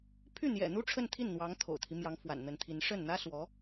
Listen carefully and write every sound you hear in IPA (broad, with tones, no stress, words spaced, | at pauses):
pʰy˥˩ n̪jɛ̰˨˩ n̪u˥ʈ͡ʂʰə˥˧nt̪ʰi˥˩n n̪wɑ˧˥ŋt̪ʰo̰˨˩ʊ̯t̪ʰi˦ mjɑ˧˥ŋfwa̰˨˩nn̪ə˧˥nt̪ʰi˧˥n ʂə˥˩n n̪ä˥ swɔ˧˥